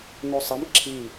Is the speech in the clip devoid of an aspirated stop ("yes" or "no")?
no